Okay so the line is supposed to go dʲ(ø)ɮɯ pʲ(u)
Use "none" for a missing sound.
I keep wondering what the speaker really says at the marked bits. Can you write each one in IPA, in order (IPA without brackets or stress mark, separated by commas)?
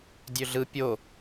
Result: ø, o